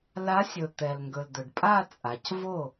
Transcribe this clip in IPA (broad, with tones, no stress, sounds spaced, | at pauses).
l a˧˥ sʲ ɵ˩ t̪ ɛ˩ l ŋ ɡ ɵ˩ l d̪ ɵ˩ ɖ pʼ a˥˧ t͡sʼ a˩˧ c v o˥˩